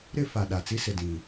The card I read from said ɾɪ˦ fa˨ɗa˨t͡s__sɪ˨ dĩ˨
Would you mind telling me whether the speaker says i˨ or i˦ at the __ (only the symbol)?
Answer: i˦